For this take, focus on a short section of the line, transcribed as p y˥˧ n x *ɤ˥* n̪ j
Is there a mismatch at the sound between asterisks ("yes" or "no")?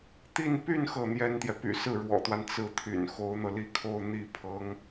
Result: yes